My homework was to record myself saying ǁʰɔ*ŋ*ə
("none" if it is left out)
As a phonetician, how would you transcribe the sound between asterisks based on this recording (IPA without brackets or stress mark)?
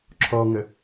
ŋ